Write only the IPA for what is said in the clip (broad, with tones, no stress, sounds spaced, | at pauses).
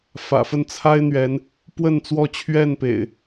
f ä̰˨˩ f ə˥˨ n t͡sʰ a˦ ɪ̯ n̪ ɥ ɛ˨˦ n | p w ə˥˨ n t͡s w ɔ˥˨ t͡ɕʰ ɥ ɛ˥˨ n p ḛ˨˩ ɪ̯